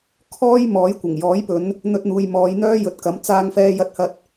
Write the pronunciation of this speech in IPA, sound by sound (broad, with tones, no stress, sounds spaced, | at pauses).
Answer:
kʰ ɔː˥ j m ɔː˨˥ j kʷ ɐ˨˩ ŋ j ɔː˨˥ j p ɵ˨˧ n | n̪ ɵ˧ t̚ n̪ uː˨ j m ɔː˨˧ j n̪ œː˥ j ɵ˨ t̚ k ɐ˨˥ m t͡s aː˧ ŋ f ɛː˧ j ɐ˧ t̚ h ɐ˧ t̚